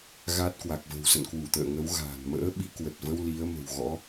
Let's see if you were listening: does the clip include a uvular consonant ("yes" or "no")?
no